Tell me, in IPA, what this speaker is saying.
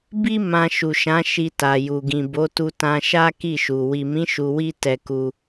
b i˦ m ã˧ ʃ u˨ ʃ ã˨˦ ʃ i˧ t a˨ j u˨ ɡ ĩ˨ b o˨˦ t u˧ t ã˧ ʃ a˦ k i˦˨ ʃ u˨ w i˨ m ĩ˨˦ ʃ u˧ w i˦ t ɛ˧ k u˧

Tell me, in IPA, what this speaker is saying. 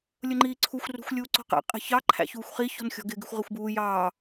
lʲ ʊ ŋ͡ǃ iː ǀʰ u xʷ r ṳ xʷ lʲ uː ǀ ɔ̤ q ɛ̰ qʼ i̤ ç ɑ ǃʰ æ̰ ç uː xʷ χ i ç ɔ̤ n xʲ ɔ̤ ɡ ɪ ɡ ɪ xʷ ʁ ɪ xʷ b uː j ɑː

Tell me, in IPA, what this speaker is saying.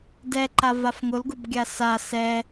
d ɛ ǃ a v a f ŋ ʊ l ɡ ʊ b ɡʲ a s a s ɛ

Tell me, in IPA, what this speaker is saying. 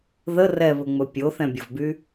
ð ə r ɛ β ɵ ŋ͡m ɵ pʲ o θ ɛ̃ bʲ ʊ v b y

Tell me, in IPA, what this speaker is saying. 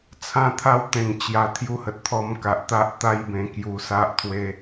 t͡sʰ ã˦ t̪ʰ a˥˧ w t̪ ẽ˨˩ ŋ t͡ɕ j a˧ t̪ʰ j u˧ h ə˨ t̚ t̪ʰ ɔ˧ m k a˨ ʔ t̪ a˦ ʔ t̪ a˦ j b ẽ˧ k j u˧ s a˦ ʔ t̪ʰ w e˦

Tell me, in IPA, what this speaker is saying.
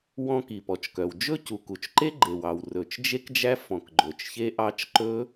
w ɔ̃˦˥ k i˩ p ɔ˩ t͡ʃ k œ˩ w d͡ʒ ɵ˦˥ c u˩ k u˩ t͡ʃ ǃ e˦˥ ɡ͡ǃ e˩ w ɑ˩ w r ɵ˩ t͡ʃ d͡ʒ e˦˥ k d͡ʒ æ˦˥ f ɔ̃˩ k ɡ͡ǃ ɵ˩ t͡ʃ ç e˦˥ ʔ ɑ˦˥ t͡ʃ ǃ ɵ˦˥

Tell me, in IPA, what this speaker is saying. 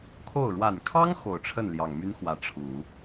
kʰ o˥˩ ʊ̯ ɻ w a˨˩ n kʰ ɑ˥ ŋ x o˨˩ ʊ̯ ʈ͡ʂʰ ə˥˩ n l j ɑ˨˩ ŋ m y˥ n x w ä˧˥ ʈ͡ʂʰ u˨˩˦

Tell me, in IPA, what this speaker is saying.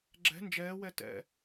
ɡ͡ǁ ɛ̤ n d͡ʒ ɛː w ɛ t ɛ̰

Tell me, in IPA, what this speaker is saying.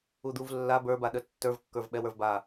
u d̪ u v lː a b ə˞ b a ɗ ə tː ə˞ v kː ə˞ v ɓ ɛ w ə˞ v b a

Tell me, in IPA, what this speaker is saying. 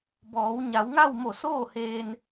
b ɔː˩˧ w ɲ a˩˧ w ŋ a˥˨ w m o˧˩ s oː˥˨ h eː˧ n

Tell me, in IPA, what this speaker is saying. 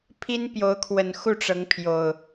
pʰ i˦ n p j o˨˦ ʊ̯ kʰ w ə˨˩ n x u˥˨ ʈ͡ʂ ɤ˨˦ ŋ pʰ j o˨˩ ʊ̯

